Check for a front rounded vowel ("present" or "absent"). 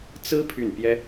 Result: present